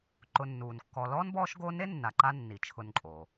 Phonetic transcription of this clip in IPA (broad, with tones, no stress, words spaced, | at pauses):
ǃʊ˨nːuː˩nkːɔ˨ lɔː˥nbɔː˦ʃɡo˦ne˥ nːa˨ǃa˦ nːi˩t͡ʃʰʊ˨nǃʼo˩